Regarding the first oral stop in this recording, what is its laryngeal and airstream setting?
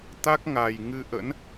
plain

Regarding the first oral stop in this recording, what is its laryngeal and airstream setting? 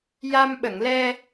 implosive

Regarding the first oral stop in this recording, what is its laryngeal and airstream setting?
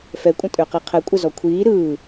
ejective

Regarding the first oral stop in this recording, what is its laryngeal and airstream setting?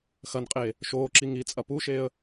ejective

